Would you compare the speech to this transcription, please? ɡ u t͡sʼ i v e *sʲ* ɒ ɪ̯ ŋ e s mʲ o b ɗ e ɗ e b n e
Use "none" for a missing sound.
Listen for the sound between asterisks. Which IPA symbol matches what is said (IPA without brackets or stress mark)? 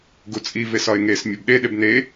s